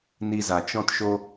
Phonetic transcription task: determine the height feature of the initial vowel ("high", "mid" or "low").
high